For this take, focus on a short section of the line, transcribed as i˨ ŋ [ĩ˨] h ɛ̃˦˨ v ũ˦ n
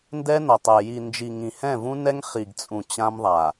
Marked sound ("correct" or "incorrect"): correct